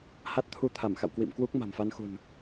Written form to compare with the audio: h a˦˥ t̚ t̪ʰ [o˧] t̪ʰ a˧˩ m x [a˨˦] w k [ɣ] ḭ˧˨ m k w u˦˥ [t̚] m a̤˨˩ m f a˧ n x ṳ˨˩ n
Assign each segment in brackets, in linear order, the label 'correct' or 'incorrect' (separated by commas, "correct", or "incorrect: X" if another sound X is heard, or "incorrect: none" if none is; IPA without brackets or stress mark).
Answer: incorrect: u˧, incorrect: a̰˧˨, incorrect: w, incorrect: k̚